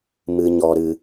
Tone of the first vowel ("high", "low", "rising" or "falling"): low